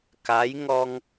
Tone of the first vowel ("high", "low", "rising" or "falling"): rising